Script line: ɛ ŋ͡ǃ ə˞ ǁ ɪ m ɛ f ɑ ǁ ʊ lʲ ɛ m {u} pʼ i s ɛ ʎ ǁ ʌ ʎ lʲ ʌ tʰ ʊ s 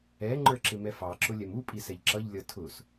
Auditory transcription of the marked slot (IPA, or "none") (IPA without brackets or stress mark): u